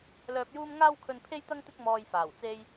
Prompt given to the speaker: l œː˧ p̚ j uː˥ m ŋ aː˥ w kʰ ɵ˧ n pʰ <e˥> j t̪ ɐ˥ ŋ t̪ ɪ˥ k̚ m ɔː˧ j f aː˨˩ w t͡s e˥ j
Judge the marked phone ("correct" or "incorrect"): correct